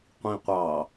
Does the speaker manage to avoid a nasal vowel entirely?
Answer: no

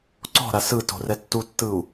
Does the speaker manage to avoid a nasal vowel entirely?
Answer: yes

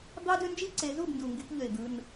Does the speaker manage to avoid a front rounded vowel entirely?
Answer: no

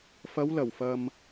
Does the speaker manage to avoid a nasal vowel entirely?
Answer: yes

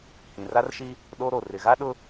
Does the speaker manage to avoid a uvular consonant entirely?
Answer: yes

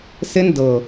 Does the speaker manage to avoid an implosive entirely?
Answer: yes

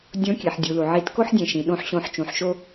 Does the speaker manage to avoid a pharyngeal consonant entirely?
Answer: no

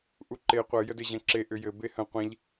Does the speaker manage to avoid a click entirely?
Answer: no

